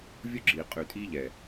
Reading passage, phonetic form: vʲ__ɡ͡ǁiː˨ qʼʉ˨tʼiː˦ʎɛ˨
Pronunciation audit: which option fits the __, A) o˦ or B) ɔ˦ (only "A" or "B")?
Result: A